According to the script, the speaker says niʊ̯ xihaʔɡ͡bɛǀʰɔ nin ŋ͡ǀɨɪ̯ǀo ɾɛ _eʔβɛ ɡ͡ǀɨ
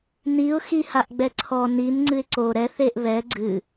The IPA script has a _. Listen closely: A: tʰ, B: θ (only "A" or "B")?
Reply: B